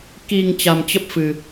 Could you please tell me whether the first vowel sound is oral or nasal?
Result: oral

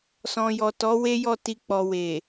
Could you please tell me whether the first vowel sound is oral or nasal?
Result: nasal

